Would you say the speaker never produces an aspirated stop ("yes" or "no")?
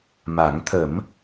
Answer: no